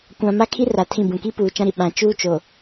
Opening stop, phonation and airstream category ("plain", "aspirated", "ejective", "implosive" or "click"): plain